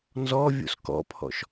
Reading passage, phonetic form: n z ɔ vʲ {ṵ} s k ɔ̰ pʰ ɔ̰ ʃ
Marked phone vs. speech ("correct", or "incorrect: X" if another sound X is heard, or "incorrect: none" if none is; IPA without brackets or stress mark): incorrect: o̰